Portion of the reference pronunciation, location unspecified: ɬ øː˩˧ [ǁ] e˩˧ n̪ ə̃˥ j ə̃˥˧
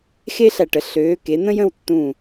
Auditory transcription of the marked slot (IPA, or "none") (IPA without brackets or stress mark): k